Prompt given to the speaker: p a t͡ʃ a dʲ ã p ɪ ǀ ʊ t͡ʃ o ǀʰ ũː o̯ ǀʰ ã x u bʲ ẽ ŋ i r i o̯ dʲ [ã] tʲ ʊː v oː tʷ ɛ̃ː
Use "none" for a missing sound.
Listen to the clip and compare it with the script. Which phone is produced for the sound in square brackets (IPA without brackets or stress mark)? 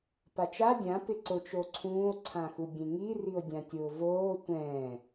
ã